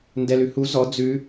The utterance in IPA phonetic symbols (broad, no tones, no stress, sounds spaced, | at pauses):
n d ɛ l ʉ h u z ɔ d͡z ʉ